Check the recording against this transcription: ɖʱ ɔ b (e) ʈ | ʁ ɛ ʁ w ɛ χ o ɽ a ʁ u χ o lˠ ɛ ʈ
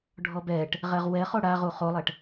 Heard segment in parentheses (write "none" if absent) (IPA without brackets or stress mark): ɛ